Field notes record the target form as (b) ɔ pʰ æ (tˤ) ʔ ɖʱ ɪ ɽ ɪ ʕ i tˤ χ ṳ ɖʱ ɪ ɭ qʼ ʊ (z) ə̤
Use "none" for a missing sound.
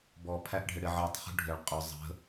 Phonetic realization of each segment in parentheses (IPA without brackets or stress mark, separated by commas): b, none, zˤ